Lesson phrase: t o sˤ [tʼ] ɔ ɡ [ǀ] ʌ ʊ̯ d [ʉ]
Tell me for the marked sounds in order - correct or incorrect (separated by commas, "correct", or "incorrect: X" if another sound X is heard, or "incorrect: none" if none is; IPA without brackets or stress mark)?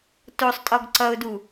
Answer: correct, correct, incorrect: u